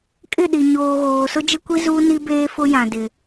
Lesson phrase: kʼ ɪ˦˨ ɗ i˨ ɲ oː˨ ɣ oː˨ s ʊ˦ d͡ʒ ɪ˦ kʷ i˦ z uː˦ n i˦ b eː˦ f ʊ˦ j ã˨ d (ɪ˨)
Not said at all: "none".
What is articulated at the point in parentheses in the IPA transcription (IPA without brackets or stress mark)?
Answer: ɪ˨